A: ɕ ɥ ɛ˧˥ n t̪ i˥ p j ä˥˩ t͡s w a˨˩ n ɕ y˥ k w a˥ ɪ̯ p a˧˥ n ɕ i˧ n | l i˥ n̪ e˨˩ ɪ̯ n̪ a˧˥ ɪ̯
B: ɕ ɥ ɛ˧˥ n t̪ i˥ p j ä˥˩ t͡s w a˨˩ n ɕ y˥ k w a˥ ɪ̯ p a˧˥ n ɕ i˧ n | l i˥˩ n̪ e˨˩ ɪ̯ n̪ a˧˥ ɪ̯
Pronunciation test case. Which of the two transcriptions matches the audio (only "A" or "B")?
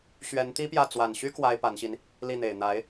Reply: B